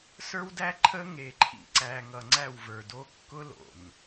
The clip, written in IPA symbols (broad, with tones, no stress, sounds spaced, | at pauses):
s ə˞˦ w d æ˦ ǃʰ ə˦ ŋ e˨ ǃʰ ḭ˨ ǀ æ˨ ŋ ʌ˨ ŋ͡ǀ æ˦˨ w v ə˞˨ d o˦ kː ʊ˦ l o̰˨ n